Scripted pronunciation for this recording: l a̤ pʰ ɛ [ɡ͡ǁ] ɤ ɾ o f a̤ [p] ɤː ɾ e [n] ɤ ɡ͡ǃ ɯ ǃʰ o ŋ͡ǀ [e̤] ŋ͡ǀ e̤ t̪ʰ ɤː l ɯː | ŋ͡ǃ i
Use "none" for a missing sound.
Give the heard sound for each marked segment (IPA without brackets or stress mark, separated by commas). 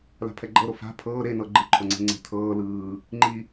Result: ɡ͡ǃ, pʰ, n, e̤